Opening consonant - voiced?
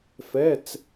no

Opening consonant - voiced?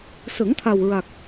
no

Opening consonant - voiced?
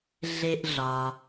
yes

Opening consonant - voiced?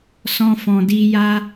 no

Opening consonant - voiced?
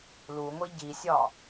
yes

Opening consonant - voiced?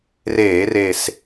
yes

